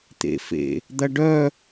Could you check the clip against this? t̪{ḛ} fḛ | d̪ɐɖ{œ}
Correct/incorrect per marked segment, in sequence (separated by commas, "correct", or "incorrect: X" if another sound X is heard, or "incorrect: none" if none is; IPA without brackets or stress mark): correct, correct